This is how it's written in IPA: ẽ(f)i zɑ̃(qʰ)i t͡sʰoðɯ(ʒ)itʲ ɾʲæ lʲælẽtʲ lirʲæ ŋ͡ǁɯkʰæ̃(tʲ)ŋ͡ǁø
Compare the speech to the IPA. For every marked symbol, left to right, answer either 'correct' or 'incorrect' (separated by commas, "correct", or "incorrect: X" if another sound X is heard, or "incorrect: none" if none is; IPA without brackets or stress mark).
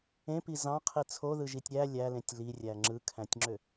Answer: incorrect: p, correct, correct, correct